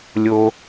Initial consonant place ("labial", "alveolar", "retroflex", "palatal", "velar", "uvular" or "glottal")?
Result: alveolar